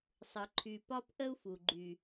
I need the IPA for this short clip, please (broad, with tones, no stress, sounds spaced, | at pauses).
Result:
sˤ ɯ˨ ǃʰ y˨ p ɒ˦ p ʔ ə˦ u̯ f u˨ ɡ͡ǃ y˨